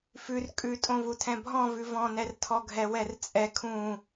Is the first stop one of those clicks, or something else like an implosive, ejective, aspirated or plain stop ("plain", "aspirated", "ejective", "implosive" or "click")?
ejective